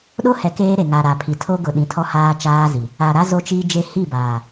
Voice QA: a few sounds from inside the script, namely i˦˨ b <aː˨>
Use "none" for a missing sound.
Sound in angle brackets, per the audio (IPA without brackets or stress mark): aː˨